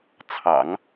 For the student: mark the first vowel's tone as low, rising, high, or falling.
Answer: low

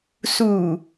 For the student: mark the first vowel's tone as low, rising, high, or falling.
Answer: low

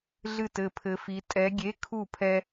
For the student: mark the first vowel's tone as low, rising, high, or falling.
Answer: falling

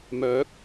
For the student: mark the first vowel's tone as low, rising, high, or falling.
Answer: rising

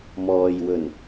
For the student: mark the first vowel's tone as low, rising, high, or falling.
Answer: low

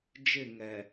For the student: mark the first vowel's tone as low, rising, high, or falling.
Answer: falling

